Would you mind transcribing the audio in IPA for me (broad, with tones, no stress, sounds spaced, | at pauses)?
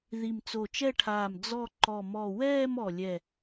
ð i˧˩ m t͡s o˧˩ t͡ʃ ɛ˥˧ ʈʰ aː˧˩ m d͡z ɔ˥˧ ǃ ɔ˧˩ m ɔ˧˩ w ɛː˥˧ m ɔ˧˩ lʲ ɛ˧˩